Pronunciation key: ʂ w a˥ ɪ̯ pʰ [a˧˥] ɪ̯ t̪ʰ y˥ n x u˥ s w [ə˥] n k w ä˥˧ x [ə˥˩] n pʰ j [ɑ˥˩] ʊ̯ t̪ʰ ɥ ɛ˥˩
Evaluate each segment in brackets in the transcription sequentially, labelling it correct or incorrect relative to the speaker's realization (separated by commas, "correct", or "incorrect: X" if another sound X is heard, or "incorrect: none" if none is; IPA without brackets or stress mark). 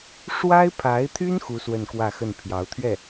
correct, incorrect: ə˥˧, correct, incorrect: ɑ˧˥